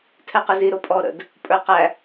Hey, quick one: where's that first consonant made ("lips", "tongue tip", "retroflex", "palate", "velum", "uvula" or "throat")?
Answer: tongue tip